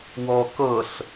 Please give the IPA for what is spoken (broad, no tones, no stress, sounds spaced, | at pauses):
w ɔ k ɤ ɬ